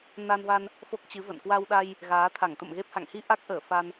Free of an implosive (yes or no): no